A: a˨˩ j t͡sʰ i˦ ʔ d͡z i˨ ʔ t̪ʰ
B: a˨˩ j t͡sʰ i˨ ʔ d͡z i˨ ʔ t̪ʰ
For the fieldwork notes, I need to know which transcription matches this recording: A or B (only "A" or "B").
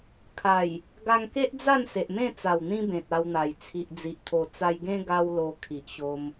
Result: B